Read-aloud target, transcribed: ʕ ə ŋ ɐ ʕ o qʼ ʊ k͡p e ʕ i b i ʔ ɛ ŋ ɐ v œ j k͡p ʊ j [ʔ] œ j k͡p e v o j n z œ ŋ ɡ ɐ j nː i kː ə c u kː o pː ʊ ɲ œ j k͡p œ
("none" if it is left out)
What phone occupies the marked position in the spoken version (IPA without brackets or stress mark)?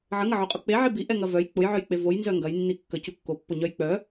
ʕ